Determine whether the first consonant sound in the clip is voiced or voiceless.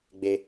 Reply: voiced